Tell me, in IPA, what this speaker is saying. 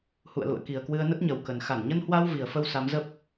hṵ˧˨ə̯lṵ˧˨ə̯ki˨˩ə̯kwɨ˧ə̯ nə˦˥t̚ɲə˨˩wkə˨˩n xa˧˩nɲə˧nhwa˧w vi˨˩ə̯fə˧w sa˨˦mzə˦˥p̚

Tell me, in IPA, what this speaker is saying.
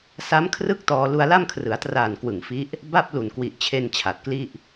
sa˦˥mkʰrɯ˥˩k̚ tɔː˧ lu˧a̯la˥˩mkʰrɯ˩˦a̯traː˨˩n kwɯ˨˩ŋfi˦˥ʔ | ba˥˩p̚ lu˨˩nkwi˨˩ʔt͡ɕʰe˧n t͡ɕʰa˨˩t̚kli˥˩ʔ

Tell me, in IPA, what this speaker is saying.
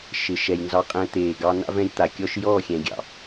ʃɪ˨ ʃɛ˨jnzɑ˧qʼɛ̃˧t̪eː˨ ɡɑ˧na̰˦ vɛ̃˧jt̪a˨ kʲɔ˧ʃjɔː˦˨xʲɛ̃˨ ɡʲɑ̰˨

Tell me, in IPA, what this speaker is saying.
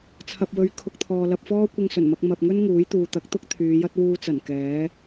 t͡sʰɐ˨p̚wɵ˨˧ɥ kʰʊ˧k̚t̪ʰɔː˨lɐ˧p̚fɔː˥ kʷɪ˧ŋsɵ˨˩nmɐ˧k̚ mɐ˨p̚ŋɵ˥n ŋuː˨˥jt̪uː˨t̪ɐ˨˥k̚t̪ʊ˥k̚ t̪ʰyː˨˧jɐ˥t̚ wuː˧t͡sɐ˨˩n kɛː˨˥

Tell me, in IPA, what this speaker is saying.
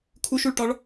kʰuʃuɭʈɒɭ

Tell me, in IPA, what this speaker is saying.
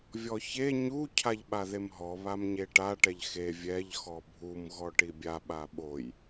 vʲɔçe ɲu cʰaʎɓaðemɦɔ βamɲeʈa ʈɛʎxe vʲɛʎ xɔbʱum ɣɔʈibʲa ɓaɓoj

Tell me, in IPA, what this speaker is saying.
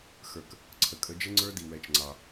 xə˞˧k | ǀʰə˧kʼə˧˥ d͡ʒə˥ŋ͡ǀə˞˥di˧ wɛ˧˥t͡ʃŋ͡ǀɑ˧

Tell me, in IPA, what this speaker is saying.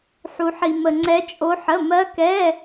ħu˧ħi˧ mə˧ ŋ͡ǀɛ˦˥ t͡ʃʼo˦˥ħə˧˥˧ mɜ˦˥kɛ˧˥˧

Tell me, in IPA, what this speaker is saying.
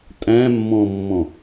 tʼæ̃mːɔ̃mːɔ̃

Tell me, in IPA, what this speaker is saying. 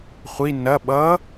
χʷi nɐ ɓʌ

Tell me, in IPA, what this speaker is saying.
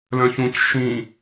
lœ̃çũc ʃĩ

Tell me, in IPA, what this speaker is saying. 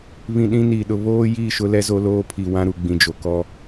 βĩ˨ɗĩ˦niː˨ɗʊ˨ βoː˦ji˦˨ ʃʊ˦lɛ˦ zo˦loː˦ pʰi˨wã˦ɾu˨ ɡ͡bĩ˨d͡ʒo˨kɔ˦

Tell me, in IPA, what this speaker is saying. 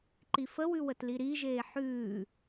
ǃifəwʉwət liɾiʒeː ħʉː

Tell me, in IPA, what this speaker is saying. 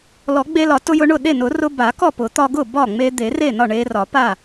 lɔ˨˩˦ɡ͡be˧lɒ˨˩˦ tʊ˧jʊ˧ɳʊ˥˩ ɗe˥˩nʊ˨˩˦rʊ˧ ba˨˩˦ kɔ˥˩pʊ˨˩˦t̪ɒ˧ ɡʊ˥˩bɒ˥˩ ŋ͡me˧d̪e˨˩˦re˥˩nɒ˥˩ ɳe˧rɒ˨˩˦ pa˥˩

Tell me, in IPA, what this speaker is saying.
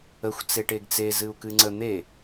əxʷ t͡seʈeɡt͡se zɨu̯kɨŋ͡ǀə n̪e

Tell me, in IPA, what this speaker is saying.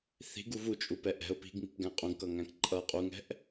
θi̤ɡu vut͡ʃʼupɛ ʔɛ̤ʊ̯ pi̤ɡŋi̤pɡæ̃ qʼũɡkʌŋæ̃k ǃʼʌ qʼuŋɛ̤ʔ

